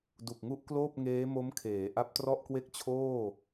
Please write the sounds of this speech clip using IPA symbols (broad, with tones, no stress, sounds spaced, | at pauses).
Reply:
d u˨˩ k̚ ŋ u˥˩ ʔ k l oː˥˩ p̚ ŋ eː˦˥ m o˦˥ m kʰ eː˩˦ ʔ a˦˥ p̚ t r ɔ˥˩ ʔ k w e˥˩ k̚ t͡ɕʰ oː˥˩